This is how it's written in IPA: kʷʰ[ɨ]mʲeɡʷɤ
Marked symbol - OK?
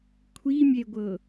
no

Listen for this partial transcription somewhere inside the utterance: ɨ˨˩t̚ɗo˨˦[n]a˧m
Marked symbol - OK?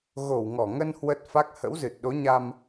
no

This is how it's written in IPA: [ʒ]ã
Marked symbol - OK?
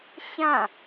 no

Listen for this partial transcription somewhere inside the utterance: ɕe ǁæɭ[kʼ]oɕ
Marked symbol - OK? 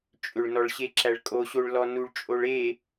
yes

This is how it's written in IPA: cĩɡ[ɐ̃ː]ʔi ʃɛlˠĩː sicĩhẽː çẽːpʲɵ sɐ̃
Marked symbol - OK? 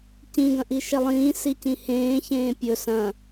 no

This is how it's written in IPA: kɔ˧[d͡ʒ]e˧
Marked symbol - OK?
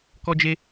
yes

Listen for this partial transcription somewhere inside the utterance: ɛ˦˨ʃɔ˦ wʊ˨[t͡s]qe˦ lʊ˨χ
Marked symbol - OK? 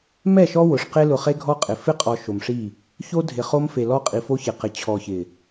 no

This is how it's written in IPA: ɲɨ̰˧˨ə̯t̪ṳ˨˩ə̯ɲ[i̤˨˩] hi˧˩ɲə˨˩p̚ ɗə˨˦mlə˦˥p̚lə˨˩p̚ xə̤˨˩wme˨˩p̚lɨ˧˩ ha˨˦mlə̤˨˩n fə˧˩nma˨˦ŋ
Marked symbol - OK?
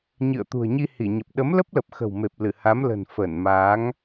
no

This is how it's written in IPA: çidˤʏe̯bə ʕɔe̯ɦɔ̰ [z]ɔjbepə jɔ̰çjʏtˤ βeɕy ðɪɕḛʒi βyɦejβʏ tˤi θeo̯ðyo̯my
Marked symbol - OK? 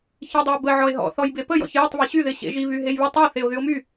no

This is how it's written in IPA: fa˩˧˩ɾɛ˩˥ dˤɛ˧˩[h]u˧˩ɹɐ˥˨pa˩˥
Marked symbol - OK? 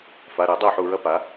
no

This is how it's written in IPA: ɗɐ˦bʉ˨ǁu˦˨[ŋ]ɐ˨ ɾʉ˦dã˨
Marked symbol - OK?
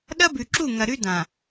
yes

